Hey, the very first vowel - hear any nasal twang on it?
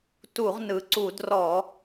no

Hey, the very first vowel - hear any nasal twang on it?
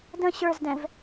yes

